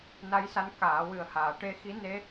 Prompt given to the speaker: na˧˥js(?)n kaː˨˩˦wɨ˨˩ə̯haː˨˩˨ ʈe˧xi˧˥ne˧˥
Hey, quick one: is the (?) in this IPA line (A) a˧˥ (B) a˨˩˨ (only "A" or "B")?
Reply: A